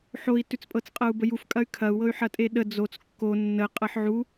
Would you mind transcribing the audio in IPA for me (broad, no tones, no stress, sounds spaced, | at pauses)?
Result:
ħ o i̯ t ʉ t͡s pʼ ɤ t͡s qʼ ɤ u̯ b ə j u f kʼ ɐ y̯ kʰ ɐ u̯ w ɤ y̯ ħ ɐ tʼ e ɗ ə d͡z o t͡s kː o nː ə qʼ ɤ ħ ʕ u